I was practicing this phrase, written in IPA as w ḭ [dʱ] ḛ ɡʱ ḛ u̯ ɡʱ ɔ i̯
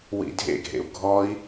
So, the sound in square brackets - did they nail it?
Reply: yes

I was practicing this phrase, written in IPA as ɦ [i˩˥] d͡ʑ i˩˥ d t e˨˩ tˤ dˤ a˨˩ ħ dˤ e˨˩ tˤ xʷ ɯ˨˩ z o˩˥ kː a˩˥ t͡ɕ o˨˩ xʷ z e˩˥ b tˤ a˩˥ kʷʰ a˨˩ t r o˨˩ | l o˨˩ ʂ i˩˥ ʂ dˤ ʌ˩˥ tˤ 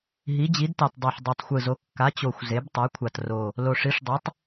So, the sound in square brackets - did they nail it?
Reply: yes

